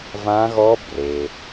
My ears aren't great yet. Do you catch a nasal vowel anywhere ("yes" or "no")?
yes